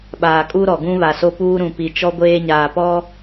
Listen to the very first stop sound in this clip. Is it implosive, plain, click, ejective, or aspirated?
implosive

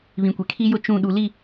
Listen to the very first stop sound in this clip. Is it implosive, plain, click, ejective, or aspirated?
plain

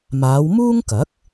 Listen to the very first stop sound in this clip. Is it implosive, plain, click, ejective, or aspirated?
plain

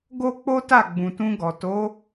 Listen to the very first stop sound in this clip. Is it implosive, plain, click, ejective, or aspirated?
plain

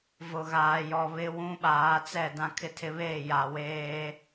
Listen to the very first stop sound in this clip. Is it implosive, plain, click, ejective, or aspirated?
implosive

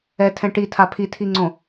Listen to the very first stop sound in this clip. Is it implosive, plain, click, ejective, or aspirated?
aspirated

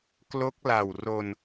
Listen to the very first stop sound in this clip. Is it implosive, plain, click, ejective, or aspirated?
plain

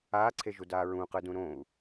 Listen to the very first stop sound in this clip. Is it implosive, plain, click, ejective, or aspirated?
click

